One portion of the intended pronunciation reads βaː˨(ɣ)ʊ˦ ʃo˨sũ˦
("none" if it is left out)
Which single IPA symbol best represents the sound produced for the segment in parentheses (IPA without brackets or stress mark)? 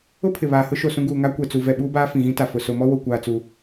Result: h